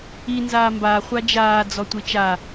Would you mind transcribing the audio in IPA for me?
i n z aː m b a χʷ a d͡ʒ aː d͡z ɔ tʷ i t͡ʃ a

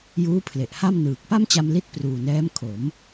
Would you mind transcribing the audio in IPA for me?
j uː˦˥ pʰ l e˨˩ ʔ h a˥˩ m n ɯː˨˩ k̚ p a˥˩ m t͡ɕ a˧ m l i˥˩ t̚ p r uː˨˩ n ɛː˦˥ m kʰ o˩˦ m

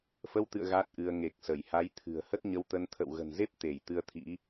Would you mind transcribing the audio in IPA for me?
f ə˧ w t̪ ɨ̰˧˨ ə̯ ɣ a˦˥ t̚ ʔ ɨ˧ ə̯ ŋ e˨˩ k̚ s ə˧˩ j h a˨˦ j t̪ʰ ɨ̤˨˩ ə̯ h ə˦˥ t̚ ɲ ə˧ w t̪ ə˧ n t̪ʰ ə̰˧˨ w ɣ ə̤˨˩ n z e˦˥ p̚ t̪ e˧˩ j t̪ ɨ˧ ə̯ t̪ʰ ḭ˧˥

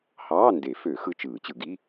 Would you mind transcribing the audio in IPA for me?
h ɑː˧˥˧ n d e˨˩˦ f ø˨˩˦ x ɯ˧˥˧ t͡ʃ ɯː˨˩˦ t͡ɕ ɯ˨˩˦ ɡ i˧˥˧

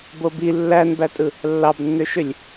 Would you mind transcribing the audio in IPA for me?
b o b i lː æ n b æ tʼ ɯ | lː ɑ b nː ø ʃ ø lʲ

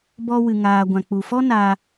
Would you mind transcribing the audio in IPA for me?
b ɔ˦ w ɨ˧ ŋ aː˧ ɡʷ ã˨ k͡p u˨ f ɔ˦ n a˧

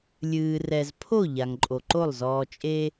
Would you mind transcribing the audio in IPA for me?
lʲ ɨː˨ r ɛ˨ z pʰ o˦˨ ʎ a˨ ŋ ǃʼ o˨ ǃ o˦˨ lˠ z ɔː˨ t͡ʃʼ e˦

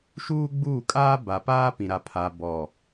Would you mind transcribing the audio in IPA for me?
ʃ uː˦ ɡ͡b uː˦˨ kʼ aː˦ b a˨ p aː˦ p ĩ˨ ɾ a˨ pʰ a˨ b ɔ˨

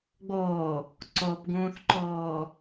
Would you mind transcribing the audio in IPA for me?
ɡ͡b o | ǀ o p ɡ ũː θ ǃ oː

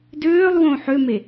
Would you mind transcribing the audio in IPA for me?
d øː lˠ w õ ħ ø m e

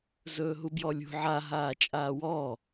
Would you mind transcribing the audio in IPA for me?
z ɵː ɦ u b j ɔ lʲ ṳ ʕ a ɦ aː t͡ʃʼ aː w ɔ

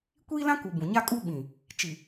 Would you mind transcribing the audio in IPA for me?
kʷ iː˦ l ã˦ k u˨ b ũ˨ ɲ a˦ kʼ u˦ ɓ ĩ˨ | t͡ʃ i˨

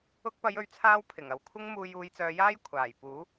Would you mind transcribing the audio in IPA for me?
ʊ˧ k̚ p ɐ˨˧ j ɵ˨˥ ɥ t͡sʰ aː˧ w pʰ ɪ˨˩ ŋ ɐ˨ w kʷʰ ɪ˥ ŋ m uː˧ j uː˨˧ j t͡s œː˨˧ j aː˥ j kʷʰ aː˨˩ j p uː˨˥

